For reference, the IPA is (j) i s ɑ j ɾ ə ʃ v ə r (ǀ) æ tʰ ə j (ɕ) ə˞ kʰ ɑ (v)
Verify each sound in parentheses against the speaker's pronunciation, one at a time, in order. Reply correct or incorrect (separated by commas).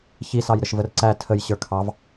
incorrect, correct, correct, correct